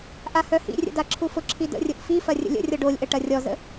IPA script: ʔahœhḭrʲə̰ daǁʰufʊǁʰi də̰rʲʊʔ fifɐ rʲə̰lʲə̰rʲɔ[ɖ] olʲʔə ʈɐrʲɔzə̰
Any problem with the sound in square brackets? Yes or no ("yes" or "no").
no